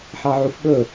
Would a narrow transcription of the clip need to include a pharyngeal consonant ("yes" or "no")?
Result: yes